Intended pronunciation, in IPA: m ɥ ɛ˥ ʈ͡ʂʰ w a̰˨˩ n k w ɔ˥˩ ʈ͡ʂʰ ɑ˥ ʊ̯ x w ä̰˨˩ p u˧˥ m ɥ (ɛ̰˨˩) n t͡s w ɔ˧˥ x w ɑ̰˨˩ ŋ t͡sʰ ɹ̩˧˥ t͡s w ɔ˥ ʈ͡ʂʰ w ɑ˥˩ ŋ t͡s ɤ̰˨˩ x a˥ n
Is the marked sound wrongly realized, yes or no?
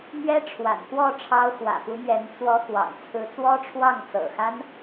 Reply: yes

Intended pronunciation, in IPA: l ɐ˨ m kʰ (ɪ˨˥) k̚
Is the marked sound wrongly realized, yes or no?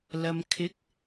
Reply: no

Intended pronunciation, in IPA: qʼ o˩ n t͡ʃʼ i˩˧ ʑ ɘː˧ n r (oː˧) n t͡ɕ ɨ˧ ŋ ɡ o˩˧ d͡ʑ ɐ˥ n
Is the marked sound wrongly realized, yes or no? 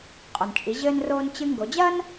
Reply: no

